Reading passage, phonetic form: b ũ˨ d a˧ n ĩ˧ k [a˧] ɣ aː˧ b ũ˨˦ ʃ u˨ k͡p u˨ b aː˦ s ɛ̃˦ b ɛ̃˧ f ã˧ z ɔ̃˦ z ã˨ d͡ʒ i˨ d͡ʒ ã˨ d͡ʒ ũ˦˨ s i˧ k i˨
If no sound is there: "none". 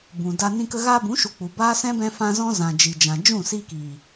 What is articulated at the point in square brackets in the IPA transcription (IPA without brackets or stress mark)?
ə˧